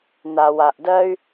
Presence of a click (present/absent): absent